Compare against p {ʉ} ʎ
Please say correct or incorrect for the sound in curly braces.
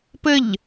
incorrect